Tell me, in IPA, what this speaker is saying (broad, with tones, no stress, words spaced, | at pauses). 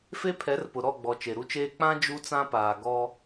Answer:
fe˦ pʰɛ˨˦rpʊ˨ ɾɔ˦˨ɡ͡bɔ˨ t͡ʃe˨ɾu˦t͡ʃeː˦ k͡pã˦ d͡ʒu˦t͡sã˦paː˨ ɡɔ˦